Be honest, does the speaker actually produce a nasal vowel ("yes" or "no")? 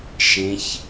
yes